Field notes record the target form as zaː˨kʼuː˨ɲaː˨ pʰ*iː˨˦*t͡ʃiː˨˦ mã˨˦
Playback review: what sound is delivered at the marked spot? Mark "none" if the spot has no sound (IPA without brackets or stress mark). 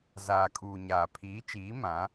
iː˨˦